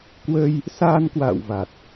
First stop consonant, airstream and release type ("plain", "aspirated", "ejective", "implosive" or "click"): plain